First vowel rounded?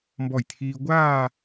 yes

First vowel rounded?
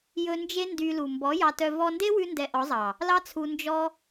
yes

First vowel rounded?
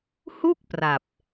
yes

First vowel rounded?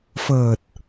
no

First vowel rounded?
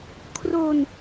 yes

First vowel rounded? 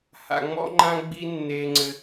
no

